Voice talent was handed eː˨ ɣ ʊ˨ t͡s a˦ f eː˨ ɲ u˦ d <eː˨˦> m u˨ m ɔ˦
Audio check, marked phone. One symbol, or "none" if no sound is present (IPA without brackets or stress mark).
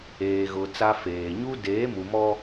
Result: eː˨˦